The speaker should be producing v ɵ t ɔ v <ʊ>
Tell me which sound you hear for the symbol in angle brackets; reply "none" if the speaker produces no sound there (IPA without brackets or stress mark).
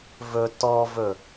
ɵ